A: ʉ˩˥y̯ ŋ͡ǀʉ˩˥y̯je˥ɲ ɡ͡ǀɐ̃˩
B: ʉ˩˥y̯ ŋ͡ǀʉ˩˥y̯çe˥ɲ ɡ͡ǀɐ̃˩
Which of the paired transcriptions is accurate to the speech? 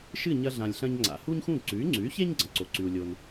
B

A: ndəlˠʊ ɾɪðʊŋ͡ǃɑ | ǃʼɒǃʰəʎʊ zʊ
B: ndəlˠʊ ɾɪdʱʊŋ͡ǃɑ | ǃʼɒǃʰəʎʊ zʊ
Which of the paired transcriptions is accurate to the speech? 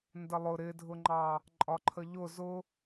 B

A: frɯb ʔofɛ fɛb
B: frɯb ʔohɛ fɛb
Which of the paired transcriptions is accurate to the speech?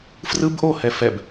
B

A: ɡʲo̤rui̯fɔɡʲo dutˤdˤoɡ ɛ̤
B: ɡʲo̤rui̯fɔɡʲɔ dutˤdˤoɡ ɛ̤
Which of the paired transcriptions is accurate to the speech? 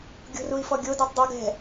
A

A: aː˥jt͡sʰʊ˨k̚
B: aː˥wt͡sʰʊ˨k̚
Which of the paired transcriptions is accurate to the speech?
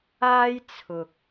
A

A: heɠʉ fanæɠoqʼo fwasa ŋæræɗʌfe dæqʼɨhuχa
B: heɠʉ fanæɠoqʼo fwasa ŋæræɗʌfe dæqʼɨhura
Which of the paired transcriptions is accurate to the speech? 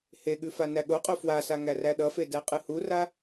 B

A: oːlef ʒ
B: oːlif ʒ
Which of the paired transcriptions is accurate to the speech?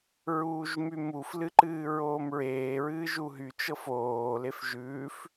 A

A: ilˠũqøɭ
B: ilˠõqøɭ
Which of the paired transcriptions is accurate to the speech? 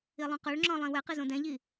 A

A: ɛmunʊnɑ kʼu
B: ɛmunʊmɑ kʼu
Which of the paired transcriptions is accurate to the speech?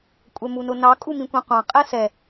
A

